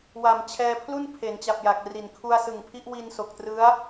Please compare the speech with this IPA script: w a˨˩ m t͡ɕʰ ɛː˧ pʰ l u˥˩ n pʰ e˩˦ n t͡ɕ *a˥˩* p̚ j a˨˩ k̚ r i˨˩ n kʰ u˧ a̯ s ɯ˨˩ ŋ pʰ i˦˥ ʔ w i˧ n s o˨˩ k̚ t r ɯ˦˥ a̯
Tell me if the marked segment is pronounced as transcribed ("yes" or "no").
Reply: no